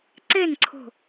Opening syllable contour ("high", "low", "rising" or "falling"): falling